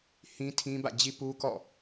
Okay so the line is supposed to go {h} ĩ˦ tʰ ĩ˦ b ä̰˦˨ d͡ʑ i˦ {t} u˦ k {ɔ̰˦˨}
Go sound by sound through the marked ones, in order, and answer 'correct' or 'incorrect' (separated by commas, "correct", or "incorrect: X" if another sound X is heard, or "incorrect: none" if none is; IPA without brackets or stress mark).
correct, incorrect: p, correct